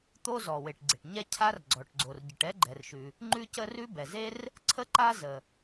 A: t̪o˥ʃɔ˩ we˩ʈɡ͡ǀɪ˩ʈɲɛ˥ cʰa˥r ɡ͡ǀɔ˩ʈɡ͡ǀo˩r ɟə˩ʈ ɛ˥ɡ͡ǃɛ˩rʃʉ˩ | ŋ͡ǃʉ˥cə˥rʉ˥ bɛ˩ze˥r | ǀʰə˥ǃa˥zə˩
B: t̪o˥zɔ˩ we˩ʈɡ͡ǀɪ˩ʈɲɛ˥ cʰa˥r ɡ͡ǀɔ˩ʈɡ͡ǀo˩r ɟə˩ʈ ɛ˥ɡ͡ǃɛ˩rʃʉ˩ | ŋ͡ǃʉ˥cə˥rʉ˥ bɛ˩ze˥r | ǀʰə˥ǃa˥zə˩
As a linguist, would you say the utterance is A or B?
B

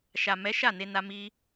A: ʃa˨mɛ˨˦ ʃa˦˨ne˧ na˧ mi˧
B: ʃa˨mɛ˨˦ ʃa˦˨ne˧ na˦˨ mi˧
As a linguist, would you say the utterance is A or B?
A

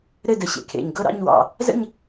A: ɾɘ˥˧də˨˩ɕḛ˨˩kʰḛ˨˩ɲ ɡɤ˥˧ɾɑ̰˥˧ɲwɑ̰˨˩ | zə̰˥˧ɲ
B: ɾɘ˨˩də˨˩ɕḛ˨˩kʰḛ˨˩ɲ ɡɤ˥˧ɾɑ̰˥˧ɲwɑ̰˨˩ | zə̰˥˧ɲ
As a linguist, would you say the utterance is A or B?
A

